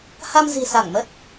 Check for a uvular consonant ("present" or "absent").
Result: absent